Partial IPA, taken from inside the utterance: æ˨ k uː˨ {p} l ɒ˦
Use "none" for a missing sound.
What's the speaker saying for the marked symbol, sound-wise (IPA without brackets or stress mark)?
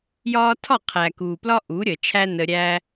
p